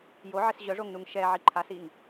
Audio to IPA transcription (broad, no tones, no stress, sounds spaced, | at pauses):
j o ʕ ɪ s ʑ œ ʐ o ŋ n u ŋ ʃ ɛ ʕ i ǃʰ a s i ŋ